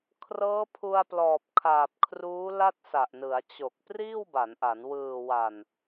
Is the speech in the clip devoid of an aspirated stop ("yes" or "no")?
no